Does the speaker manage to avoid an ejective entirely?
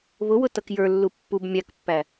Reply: yes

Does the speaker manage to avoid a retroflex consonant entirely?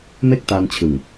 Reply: yes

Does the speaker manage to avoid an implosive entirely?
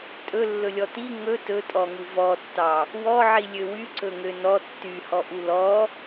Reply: yes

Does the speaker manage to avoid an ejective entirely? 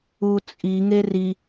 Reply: no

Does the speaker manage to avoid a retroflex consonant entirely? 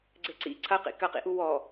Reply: yes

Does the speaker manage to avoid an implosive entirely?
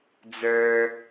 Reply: yes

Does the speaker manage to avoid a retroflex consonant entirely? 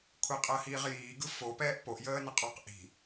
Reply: yes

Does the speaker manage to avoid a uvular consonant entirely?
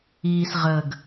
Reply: no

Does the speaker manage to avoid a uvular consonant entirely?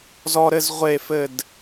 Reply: no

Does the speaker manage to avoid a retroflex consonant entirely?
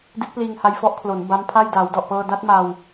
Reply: yes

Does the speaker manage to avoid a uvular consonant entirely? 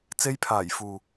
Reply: yes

